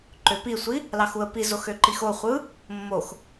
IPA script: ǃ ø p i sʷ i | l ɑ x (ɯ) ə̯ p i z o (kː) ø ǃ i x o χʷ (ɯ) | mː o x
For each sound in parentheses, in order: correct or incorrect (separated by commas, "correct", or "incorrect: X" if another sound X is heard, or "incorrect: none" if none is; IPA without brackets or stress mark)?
incorrect: u, incorrect: x, correct